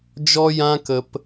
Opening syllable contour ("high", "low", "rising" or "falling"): high